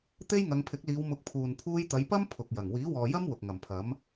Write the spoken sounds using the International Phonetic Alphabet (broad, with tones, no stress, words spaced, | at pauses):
t̪e˥jŋɐ˨˧ŋpʰɪ˨˥k̚liː˨˧w mʊ˨˥k̚pʰuː˨n pʰuː˧jt̪ɐ˨˧jpɐ˥m pʰʊ˨k̚jɐ˨˩ŋ wiː˨˥wɔː˨jɐ˥m wʊ˨k̚ŋɐ˨˩mpʰɐ˨˥m